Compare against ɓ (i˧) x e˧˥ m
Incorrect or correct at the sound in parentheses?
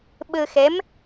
incorrect: ɨ˧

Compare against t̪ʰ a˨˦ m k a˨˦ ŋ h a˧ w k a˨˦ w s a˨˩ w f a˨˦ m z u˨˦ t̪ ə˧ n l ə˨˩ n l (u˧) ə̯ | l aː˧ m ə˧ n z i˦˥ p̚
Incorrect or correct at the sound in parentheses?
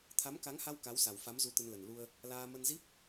correct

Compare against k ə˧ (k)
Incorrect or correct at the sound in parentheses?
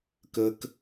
correct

